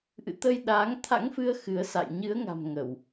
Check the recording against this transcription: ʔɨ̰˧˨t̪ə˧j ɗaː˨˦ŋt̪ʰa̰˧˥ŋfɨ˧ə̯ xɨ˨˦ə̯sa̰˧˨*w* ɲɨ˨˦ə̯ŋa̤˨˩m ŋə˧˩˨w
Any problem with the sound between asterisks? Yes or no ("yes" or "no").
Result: yes